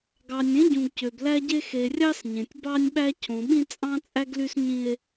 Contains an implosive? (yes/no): yes